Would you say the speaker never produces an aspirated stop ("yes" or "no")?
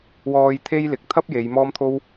no